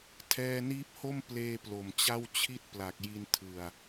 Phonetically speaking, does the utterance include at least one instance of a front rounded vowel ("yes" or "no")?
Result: no